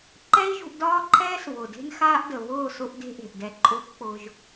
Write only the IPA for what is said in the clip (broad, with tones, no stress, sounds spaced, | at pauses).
ǃ ɛ˦ i̯ ʒ ṳ˧ ʔ d ɒː˦ ǃʰ ɛː˦ s β ʊ˨ d e̤˦ n x aː˦ ʔ d ə˨ β ʊː˦˨ s ʊ˦ ʔ d e̤˦ ʔ e̤˨ ʔ d ɛ˧ ǃʼ ʊː˦ k k͡p ʊː˧ ʒ